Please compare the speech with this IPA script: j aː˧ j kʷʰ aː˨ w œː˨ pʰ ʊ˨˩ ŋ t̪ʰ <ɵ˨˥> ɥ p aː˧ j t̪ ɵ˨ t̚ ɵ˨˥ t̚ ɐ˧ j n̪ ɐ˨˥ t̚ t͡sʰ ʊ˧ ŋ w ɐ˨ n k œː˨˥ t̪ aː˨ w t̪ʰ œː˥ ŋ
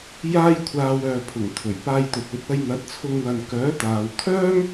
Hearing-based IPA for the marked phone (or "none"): ɵ˨˩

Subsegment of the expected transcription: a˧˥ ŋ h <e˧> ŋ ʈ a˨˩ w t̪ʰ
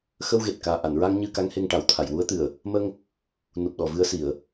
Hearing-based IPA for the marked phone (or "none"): e˧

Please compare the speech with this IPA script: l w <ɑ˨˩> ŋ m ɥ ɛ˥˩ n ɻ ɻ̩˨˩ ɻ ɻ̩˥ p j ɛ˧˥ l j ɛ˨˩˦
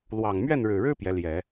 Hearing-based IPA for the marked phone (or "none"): ɑ˨˩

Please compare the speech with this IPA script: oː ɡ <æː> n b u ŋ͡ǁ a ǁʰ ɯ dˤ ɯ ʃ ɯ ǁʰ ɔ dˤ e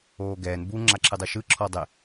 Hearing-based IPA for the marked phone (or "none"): ɛː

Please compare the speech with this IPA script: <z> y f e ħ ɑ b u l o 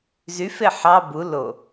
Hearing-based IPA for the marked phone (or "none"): z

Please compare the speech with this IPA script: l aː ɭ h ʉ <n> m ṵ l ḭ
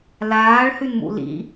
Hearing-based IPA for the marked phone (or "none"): n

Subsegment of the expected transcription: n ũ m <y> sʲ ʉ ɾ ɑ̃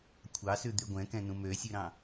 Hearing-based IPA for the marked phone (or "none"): ø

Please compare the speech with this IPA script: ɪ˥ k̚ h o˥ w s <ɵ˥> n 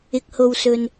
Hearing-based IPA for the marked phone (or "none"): ɵ˥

